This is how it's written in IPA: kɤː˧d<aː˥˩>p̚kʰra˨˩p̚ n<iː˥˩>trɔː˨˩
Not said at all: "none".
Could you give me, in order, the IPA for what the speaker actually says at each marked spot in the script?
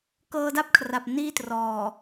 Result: a˥˩, iː˥˩

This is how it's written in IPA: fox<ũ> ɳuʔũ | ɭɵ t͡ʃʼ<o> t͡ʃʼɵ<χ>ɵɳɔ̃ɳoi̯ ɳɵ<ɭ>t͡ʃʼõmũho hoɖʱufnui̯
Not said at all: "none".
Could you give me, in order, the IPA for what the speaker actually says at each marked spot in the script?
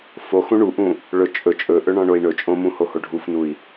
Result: ũ, ɵ, ʔ, none

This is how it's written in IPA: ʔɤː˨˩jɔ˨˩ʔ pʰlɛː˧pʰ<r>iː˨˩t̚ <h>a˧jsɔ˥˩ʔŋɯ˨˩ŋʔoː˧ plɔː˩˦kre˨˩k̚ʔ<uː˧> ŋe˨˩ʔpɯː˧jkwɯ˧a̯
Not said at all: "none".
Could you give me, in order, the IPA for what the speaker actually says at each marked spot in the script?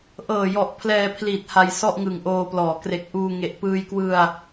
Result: l, h, uː˧

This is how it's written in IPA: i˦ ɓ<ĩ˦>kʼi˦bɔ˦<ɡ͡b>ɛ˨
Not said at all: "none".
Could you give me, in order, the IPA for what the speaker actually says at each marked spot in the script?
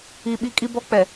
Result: i˦, k͡p

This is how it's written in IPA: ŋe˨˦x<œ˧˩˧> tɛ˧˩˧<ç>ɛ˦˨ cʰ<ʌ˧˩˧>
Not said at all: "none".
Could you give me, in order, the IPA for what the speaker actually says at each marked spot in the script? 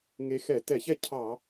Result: ɛ˧˩˧, ç, ɑ˧˩˧

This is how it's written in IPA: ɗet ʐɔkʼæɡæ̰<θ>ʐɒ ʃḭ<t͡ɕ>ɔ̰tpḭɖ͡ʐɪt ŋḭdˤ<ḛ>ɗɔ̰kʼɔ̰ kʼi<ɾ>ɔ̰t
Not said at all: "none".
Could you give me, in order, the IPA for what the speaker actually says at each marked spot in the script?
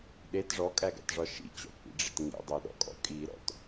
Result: t, t͡ɕ, e, ɾ

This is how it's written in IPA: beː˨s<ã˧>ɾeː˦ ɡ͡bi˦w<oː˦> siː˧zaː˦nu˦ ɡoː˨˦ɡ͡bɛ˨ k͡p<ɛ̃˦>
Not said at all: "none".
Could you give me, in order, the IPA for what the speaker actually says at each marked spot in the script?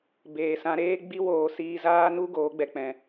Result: ã˧, oː˨, ɛ̃˨

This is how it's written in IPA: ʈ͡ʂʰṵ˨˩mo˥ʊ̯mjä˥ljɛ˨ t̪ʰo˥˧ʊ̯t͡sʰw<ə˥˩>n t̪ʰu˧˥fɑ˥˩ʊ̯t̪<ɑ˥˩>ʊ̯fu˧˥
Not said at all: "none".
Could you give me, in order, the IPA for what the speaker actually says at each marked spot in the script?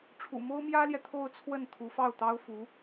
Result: ə˥˩, ɑ˥

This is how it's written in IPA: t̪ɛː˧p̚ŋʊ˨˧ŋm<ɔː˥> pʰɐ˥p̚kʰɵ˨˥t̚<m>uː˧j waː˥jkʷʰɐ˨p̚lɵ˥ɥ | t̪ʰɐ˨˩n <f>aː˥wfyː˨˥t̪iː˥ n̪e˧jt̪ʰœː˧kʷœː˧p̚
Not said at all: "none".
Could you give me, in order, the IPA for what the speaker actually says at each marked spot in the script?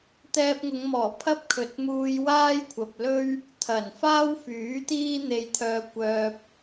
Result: ɔː˨˩, m, f

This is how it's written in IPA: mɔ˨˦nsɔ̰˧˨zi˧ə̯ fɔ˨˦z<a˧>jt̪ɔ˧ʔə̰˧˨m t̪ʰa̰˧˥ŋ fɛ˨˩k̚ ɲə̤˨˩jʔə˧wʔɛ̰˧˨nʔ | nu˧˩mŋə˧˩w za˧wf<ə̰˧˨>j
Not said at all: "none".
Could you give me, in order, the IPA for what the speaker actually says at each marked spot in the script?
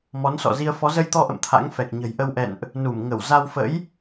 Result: ə˧, ə̰˧˥

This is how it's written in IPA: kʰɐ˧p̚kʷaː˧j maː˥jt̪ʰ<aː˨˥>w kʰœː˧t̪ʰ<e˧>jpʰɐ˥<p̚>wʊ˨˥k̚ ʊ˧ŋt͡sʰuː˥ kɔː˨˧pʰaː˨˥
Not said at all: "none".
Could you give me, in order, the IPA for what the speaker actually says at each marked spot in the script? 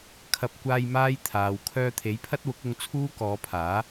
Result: aː˨, e˨˥, t̚

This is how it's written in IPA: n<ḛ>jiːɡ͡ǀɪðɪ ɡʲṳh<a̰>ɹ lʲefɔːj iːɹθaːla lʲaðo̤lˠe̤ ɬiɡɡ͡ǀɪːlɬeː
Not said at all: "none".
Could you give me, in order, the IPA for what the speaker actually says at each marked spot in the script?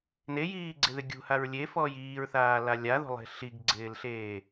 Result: e, a

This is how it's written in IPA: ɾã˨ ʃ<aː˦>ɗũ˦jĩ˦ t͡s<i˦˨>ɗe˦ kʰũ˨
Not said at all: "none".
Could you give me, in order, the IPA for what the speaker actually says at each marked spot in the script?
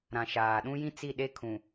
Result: aː˨, i˦˨

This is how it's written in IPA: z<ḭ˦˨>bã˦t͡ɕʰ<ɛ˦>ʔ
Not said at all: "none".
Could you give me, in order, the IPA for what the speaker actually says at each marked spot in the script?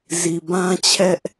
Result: i˨, ɛ˦

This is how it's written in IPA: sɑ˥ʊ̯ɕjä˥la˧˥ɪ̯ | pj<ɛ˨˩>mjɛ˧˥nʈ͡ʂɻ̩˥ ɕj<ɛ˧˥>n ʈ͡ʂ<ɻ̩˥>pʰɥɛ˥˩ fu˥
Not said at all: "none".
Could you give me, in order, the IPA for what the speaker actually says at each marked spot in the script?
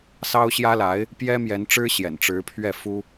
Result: ɛ˥, ɛ̰˨˩, ɻ̩˧˥

